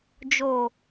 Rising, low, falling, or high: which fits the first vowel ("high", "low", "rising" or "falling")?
low